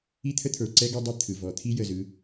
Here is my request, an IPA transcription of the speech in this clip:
i˦ t̪ʰ ə˦ t̪ʰ ə˞˨ ǀ ɛ˦ ɡ o˦ dˤ ɐ˦ t̪ʰ ɯ˨ v ɔ˨ t̪ʰ i˦ j ə˨ z ɯ˨˦

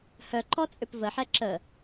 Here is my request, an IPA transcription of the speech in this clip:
h œ ǃ ɔ t͡sʼ ʏ p v ə ħ ɛ ǁ ə

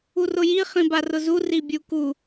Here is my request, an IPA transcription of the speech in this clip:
u r ʊ j i χ ĩ b a r ʊ z u r i bʲ u k u

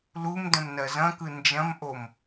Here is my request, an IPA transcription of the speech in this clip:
l u m d ə̃ m n ɜ z ɐ̃ k ɯ n d͡ʒ ɐ̃ m ʔ o m

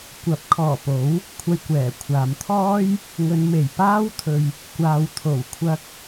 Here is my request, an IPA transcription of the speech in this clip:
kʷ ɐ˨˥ p̚ kʰ ɔː˨˩ p o˨˥ w | kʷʰ ɐ˧ j kʷ ɛː˨˩ kʷʰ aː˨ m t̪ʰ ɔː˥ j | ŋ ɵ˨˧ n m e˨˩ j p aː˥ w t̪ʰ ɵ˨ ɥ | kʷ aː˨ w t̪ʰ o˨˩ w kʷʰ ɐ˧ k̚

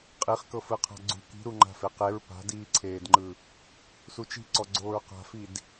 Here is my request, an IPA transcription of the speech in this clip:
qʼ i χ k ɤ f ɯ qʰ a̤ ɡ͡ǀ ṳ k i̤ ɾ u ŋ͡ǃ a̤ f e q e ɹ p a̤ d iː ǀʰ eː d ŋ͡ǃ ɯ | s u t͡ʃ i̤ ǀ ɔ ɡ͡ǀ oː ɹ q a̤ f i d

